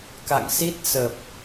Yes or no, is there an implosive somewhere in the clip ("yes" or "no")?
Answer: no